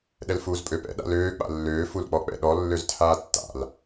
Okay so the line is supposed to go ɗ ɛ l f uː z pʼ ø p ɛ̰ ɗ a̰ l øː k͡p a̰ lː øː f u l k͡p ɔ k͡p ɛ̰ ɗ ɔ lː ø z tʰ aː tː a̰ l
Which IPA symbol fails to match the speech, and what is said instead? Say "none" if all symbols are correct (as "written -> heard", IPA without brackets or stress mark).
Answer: none